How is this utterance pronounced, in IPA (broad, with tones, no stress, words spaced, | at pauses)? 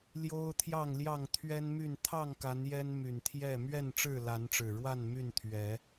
ljo˦ʊ̯t̪ʰjɑ˥˨ŋljɑ˥˨ŋ t̪ʰɥɛ˦nmy˥˨n t̪ʰɑ˥˨ŋka˨˦n jɛ˦nmy˨˩nt̪ʰjɛ˥˨ mɥɛ˥˨nʈ͡ʂɻ̩˥˨la˨˦nʈ͡ʂɻ̩˨˩ ɻwa˥˨nmy˥˨n t̪ʰɥɛ˨˦